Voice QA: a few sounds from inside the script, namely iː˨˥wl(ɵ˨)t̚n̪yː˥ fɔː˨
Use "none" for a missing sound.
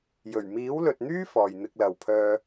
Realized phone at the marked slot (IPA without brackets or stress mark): ɵ˨